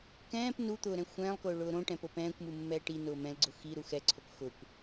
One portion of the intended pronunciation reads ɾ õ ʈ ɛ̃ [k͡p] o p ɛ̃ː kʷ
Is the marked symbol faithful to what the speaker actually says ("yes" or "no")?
no